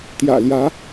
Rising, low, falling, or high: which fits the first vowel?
low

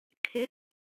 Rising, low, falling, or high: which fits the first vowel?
rising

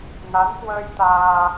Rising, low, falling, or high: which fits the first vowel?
rising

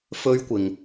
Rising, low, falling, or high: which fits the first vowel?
high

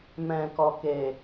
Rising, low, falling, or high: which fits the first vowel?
low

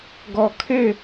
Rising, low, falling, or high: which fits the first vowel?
low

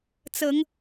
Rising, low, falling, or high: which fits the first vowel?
rising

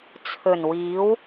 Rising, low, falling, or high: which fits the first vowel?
low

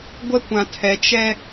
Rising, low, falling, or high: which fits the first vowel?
high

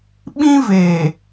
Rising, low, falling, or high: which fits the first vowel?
high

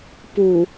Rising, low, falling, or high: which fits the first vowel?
low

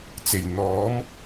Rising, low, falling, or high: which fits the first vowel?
low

